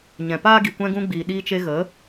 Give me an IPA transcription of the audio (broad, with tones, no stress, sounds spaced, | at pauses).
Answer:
ɲ ɛ̃˨ p aː˦ ɡ i˨ kʷ ɛ̃˧ ɡ ũ˧ ɡ͡b iː˨ ɗ iː˧ t͡ʃ e˧ ɣ ə˨˦